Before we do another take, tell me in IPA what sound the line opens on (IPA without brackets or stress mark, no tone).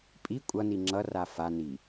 pʼ